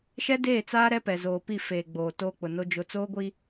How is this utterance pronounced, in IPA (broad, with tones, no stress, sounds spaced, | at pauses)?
ʃ ɛ˦ d eː˦˨ t͡s aː˦ ɾ ɛ˦ p ɛ˨ z oː˨ p i˦˨ f eː˨ ɡ͡b oː˨ t oː˦ k͡p ʊ˨ n o˦ d͡ʒ ʊ˦ t͡s oː˦ ɡʷ i˦